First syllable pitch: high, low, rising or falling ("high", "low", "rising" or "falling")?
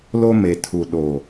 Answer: high